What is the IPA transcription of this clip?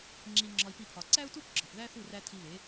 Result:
ŋ͡ǁ i˧ ŋ͡ǁ ɒ˧ i̯ p i˧ pʰ ɒ˨ ǀ æ˦ u̯ t u˦ p ɡ͡ǁ ɒ˨ p ð æ˦ θ u˦˨ r æ˧ tʰ i˧ β e˨˦

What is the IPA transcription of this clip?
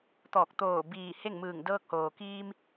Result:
t̪ ɔː˧˩ k̚ t̪ oː˧˩ b iː˧˩ h e˥˨ ŋ m ɯː˧˩ ŋ d ɤː˧ k̚ h oː˩ k iː˧ m

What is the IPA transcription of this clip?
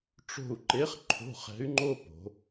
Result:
ʈ͡ʂ o̤˦˨ u̯ ǃ e˧˥ χ ǃʰ o̤˧˥˧ χ ɛ̤˧˥ y̯ ŋ͡ǃ o˥ p o̤˩˧

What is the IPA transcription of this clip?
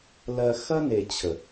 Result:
l ɜ˧ x ɐ˦ n e˨ t͡ɕʰ ə˨

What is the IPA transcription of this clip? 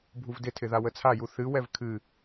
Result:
bʱ u v d ɪ tʰ ɪ ð a w ə t͡sʰ a j u θ ɨ w ɛ v kʰ ɨ

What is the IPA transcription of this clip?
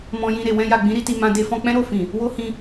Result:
m ɔ̃˧ j ĩ˧ ɾ e˨ w ɛ̃˧ j a˨ ɡ͡b ĩ˨˦ ɾ i˧ t i˧ m ã˧ d e˦ f ɔ̃˦ k͡p ɛ̃˦ ɾ o˦˨ f ĩ˨ | w o˦ h ĩ˧

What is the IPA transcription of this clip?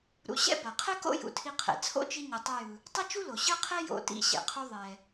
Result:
ɾ ṵ˧ ɕ ɛ̰˥ b a˩ qʰ ɛ˥ k o̰˥ j ṵ˧ tʰ i˧ qʰ ɛ̰˩ t͡sʰ o̰˥ t͡ʃ i˧ ɲ ɯ˩ tˤ ʌ˧ j ɯ˩ | tˤ ʌ˥ t͡ʃ u˥ l o˩ ɕ ɯ˥ qʰ ɛ˥ j o̰˧ t ḭ˧ ɕ ɛ̰˩ qʰ u˧ ðˤ ɛ˩

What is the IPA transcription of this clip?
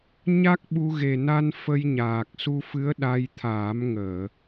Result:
ɲ a˦˥ k̚ ɓ u˧ ɣ e˨˩ n a˧ n f ə˧ j ɲ aː˨˩ k̚ s u˧ f ɨ˧˥ ə̯ ɗ a˧ j t̪ʰ aː˨˩˦ m ŋ əː˨˩˨

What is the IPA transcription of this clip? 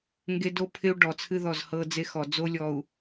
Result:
ŋ ɡ e˦ d o˦ pʰ ɪ˦ u̯ ɖ ɔ˨ t͡sʰ ɨ˦ ð ɔ˦˨ z h ɤ˦ d͡z e˦ x ɔ˨ d͡z o˦ lʲ ɔ˨ u̯

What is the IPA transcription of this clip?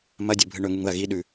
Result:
m ɐ dʲ o bʱ ɨ ɳ ɵ ŋ u ŋ ð ɐ ɣ i ɗ ʉ

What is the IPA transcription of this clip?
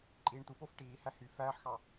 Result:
ǃʼ iː ɳ t̪ u p o f ʈ iː h æ h y f æː ħ x ɑ

